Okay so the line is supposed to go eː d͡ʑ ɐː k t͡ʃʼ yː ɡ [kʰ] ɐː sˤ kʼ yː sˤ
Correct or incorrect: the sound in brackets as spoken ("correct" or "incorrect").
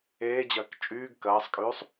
incorrect